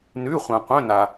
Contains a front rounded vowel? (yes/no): yes